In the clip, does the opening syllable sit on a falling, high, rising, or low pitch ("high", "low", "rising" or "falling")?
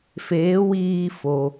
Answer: rising